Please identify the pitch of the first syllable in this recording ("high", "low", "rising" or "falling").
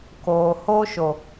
low